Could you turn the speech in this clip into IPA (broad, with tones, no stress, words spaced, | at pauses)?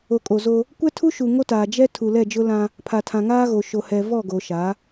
o˨kʼo˨zo˦ | kʷɛ˦tʰu˦ʃu˨ ŋo˦taː˨ d͡ʒɛ˦ tʰu˨lɛ˦˨d͡ʒʊ˦lã˦ | pʰa˨tʰã˨ŋaː˦ɣo˨ ʃo˨hɛ˨ vɔ˦˨ɡo˨ʃa˨˦